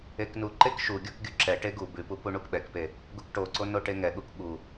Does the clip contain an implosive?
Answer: yes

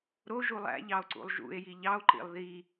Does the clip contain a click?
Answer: yes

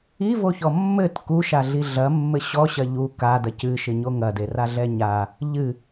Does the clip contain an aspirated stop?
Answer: no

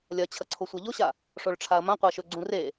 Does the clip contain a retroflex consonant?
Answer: yes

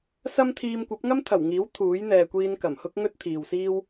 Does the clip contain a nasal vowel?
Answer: no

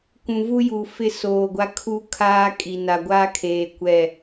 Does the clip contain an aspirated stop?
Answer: yes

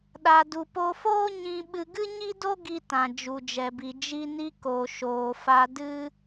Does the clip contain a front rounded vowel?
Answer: no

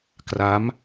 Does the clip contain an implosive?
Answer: no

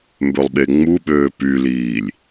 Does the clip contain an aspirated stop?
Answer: no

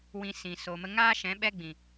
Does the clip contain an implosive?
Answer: yes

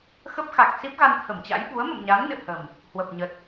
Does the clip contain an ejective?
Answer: no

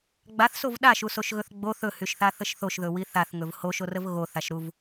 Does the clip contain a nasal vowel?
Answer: no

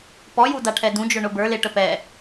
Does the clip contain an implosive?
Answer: no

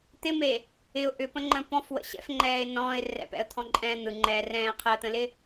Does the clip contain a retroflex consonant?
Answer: no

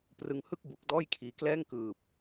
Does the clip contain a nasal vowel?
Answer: no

